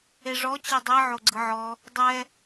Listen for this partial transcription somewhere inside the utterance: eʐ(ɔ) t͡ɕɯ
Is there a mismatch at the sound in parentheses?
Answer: no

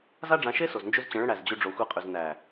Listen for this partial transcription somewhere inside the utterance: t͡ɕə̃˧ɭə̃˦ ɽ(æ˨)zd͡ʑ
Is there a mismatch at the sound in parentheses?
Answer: yes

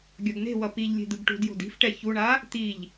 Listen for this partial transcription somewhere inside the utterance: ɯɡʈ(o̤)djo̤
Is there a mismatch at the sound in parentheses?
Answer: yes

